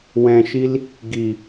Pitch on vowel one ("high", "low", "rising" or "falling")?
low